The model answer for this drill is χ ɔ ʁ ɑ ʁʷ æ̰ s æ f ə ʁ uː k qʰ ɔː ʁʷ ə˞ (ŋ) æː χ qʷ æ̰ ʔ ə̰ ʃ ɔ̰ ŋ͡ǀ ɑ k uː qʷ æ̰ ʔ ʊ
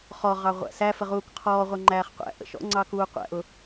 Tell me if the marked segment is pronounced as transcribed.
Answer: no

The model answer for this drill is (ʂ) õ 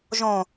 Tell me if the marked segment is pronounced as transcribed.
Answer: no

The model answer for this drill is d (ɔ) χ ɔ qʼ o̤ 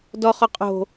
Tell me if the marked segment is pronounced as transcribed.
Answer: yes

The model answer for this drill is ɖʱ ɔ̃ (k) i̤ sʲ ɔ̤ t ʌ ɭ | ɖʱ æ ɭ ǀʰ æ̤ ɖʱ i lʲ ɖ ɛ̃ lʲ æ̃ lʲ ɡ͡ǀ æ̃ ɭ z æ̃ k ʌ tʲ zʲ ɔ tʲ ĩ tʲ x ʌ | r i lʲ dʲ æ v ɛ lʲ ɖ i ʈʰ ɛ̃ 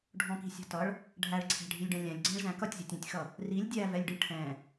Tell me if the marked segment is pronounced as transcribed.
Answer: yes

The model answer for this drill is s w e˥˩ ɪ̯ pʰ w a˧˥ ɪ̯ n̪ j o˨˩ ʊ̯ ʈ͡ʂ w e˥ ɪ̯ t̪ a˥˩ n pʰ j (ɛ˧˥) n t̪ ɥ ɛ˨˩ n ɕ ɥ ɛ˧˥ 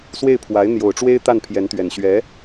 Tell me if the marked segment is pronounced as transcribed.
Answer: yes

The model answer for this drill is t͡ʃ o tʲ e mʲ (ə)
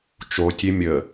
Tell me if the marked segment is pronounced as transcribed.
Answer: yes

